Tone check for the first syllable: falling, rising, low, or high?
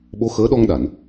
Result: rising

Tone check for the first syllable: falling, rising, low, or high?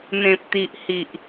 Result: low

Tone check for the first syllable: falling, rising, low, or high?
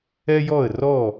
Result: high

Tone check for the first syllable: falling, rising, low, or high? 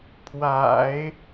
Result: low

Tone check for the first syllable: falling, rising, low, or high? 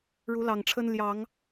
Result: rising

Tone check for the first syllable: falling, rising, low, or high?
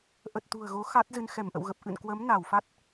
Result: low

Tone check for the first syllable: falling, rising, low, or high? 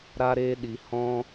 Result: high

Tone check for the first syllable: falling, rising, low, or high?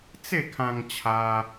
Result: falling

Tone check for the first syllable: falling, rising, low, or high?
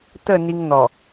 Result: falling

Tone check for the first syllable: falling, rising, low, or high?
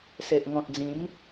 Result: low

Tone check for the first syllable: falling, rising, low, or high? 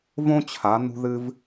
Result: high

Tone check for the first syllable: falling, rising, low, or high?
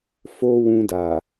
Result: high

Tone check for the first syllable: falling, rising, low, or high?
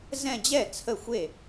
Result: falling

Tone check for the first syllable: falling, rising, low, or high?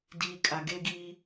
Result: low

